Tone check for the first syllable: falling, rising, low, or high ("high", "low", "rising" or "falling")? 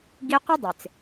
high